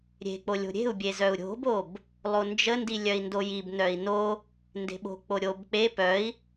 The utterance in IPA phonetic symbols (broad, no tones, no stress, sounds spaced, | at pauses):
ɾʲ e̤ k͡p o lʲ o̤ ɾʲ e̤ u̯ bʲ e z œ u̯ ɾʲ o̤ b o b | lˠ o n d͡ʒ ə n d i lʲ œ i̯ n d o j i b n œ i̯ n o | n d e̤ ɓ o̤ k͡p o ɾʲ o b k͡p e p œ i̯